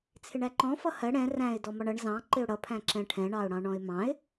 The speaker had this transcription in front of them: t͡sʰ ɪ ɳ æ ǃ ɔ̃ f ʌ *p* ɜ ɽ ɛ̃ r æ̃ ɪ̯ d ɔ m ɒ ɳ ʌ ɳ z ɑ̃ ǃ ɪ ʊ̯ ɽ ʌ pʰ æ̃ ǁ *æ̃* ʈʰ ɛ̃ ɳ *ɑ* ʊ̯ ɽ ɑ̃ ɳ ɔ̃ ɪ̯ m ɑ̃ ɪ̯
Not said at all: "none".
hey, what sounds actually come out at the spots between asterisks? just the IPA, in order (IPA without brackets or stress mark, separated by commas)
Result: h, ɛ̃, ɑ